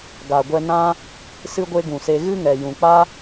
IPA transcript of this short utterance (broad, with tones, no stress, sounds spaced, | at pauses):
ɡ a˨ ɡʷ ɛ˧ n ã˦ | s ɨ˦ ɡʷ e˦ ɡ ũ˨ s e˧ ɣ ɨ˦ ŋ ɛ˨ j ũ˨ k͡p a˦